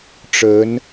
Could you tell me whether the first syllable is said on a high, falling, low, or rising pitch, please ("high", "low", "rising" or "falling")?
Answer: rising